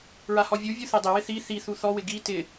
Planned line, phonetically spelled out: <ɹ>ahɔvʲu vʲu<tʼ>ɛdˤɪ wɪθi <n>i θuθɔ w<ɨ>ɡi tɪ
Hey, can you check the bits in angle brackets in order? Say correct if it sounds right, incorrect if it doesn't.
correct, incorrect, incorrect, incorrect

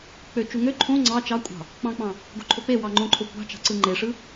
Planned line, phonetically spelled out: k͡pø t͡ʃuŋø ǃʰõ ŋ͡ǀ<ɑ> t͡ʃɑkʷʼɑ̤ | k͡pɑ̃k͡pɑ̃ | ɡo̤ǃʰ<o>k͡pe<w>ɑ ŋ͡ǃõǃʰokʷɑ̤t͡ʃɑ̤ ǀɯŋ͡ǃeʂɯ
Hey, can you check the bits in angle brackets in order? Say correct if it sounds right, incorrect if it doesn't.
correct, correct, correct

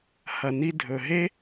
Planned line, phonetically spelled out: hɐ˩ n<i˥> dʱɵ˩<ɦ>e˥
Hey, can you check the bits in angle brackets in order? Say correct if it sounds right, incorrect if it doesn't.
incorrect, correct

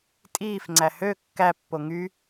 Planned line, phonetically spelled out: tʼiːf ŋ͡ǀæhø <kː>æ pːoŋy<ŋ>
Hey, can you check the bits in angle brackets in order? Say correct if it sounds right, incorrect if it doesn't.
correct, incorrect

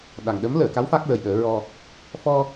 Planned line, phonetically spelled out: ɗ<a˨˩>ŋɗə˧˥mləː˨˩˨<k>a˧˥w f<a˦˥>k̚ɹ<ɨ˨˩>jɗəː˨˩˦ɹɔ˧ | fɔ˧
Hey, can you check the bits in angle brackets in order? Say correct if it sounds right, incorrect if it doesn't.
correct, correct, correct, incorrect

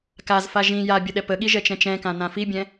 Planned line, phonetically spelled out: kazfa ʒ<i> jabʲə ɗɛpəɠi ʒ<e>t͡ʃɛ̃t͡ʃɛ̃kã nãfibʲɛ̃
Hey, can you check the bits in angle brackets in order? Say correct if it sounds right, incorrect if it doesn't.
incorrect, incorrect

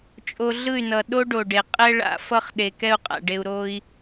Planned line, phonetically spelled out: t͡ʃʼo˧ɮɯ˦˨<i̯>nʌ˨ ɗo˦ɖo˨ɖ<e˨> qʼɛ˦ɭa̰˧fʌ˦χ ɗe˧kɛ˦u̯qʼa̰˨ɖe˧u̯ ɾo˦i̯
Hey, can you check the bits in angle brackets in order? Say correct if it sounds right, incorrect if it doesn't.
incorrect, correct

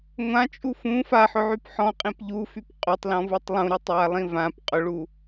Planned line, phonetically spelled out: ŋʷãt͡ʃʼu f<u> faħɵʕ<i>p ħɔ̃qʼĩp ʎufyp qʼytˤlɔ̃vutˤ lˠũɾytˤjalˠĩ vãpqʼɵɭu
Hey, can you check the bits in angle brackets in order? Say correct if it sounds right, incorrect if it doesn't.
incorrect, incorrect

